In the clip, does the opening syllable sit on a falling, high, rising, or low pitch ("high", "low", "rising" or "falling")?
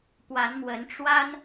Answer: rising